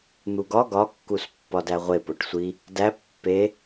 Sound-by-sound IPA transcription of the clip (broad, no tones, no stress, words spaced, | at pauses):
n̪uɡɒ ɡɒkːus pːɒdæʁʷe poʈsʷi | dæ pːe